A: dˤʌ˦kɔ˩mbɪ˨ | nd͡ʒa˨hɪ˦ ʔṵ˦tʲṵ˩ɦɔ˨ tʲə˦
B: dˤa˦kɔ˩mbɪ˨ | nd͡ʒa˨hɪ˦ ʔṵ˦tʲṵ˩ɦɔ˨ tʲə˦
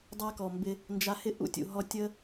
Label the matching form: B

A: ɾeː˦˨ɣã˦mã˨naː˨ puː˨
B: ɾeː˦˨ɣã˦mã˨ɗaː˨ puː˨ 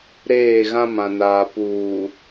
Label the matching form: A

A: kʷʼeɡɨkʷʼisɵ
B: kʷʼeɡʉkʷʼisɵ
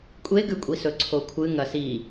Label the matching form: B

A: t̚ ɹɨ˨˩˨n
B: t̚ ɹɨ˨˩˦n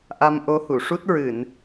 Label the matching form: A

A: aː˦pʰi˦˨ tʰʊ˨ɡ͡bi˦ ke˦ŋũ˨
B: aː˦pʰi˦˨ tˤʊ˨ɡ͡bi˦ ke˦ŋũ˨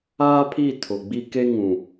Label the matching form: A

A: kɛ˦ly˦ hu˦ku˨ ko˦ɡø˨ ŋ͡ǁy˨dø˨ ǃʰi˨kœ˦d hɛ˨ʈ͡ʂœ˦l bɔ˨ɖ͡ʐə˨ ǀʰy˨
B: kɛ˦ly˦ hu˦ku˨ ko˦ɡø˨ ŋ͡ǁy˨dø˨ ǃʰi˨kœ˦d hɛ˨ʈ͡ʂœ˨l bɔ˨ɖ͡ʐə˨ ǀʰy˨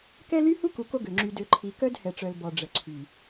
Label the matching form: B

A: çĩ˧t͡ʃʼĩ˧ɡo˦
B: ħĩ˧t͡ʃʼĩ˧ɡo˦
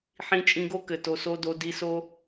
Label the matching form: B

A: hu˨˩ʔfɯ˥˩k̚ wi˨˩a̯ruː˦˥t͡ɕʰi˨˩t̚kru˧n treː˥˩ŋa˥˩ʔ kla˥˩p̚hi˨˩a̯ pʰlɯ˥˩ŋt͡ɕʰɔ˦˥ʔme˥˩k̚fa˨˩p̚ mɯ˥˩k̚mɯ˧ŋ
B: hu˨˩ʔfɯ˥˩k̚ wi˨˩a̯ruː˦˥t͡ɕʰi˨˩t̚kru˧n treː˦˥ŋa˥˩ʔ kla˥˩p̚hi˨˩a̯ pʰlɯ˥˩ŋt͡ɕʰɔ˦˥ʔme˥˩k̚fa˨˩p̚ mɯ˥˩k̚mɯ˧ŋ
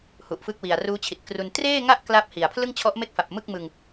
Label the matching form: A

